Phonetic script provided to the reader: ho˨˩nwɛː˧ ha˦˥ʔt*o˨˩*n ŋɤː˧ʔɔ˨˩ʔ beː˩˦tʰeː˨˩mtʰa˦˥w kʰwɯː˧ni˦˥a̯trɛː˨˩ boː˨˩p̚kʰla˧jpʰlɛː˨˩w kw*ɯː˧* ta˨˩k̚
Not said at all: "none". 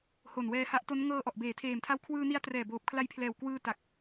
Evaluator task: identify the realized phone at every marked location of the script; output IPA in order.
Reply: o˦˥, ɯː˧

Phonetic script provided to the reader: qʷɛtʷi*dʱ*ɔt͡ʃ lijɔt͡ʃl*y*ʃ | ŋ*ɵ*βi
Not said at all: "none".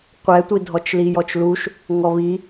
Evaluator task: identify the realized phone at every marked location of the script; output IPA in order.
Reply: dʱ, u, ɔ

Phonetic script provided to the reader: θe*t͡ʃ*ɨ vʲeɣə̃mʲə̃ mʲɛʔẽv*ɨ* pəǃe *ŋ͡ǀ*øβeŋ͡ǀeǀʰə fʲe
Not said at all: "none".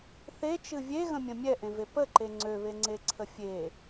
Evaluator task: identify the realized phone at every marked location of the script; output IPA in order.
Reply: t͡ʃ, e, ŋ͡ǀ

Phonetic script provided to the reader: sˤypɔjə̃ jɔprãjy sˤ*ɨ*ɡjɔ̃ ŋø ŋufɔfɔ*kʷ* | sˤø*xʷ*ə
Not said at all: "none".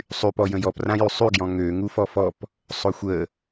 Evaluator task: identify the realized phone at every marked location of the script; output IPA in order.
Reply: y, p, xʷ

